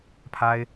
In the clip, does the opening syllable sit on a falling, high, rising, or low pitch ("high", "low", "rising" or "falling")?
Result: high